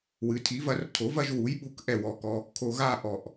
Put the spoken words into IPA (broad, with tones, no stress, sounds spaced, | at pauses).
w ɨ˩˥ tʰ i˩˥ v ɐ˩˥ r tʰ o˩˥ v ɐ˥˧ ʒ w u˩˥ j ɓ u˩˥ k ʔ ɛ˧˩ w ɔ˧˩ k ɔ˧ | kʰ o˧ ɣ a˥˧ ʔ ɔ˧˩ ʔ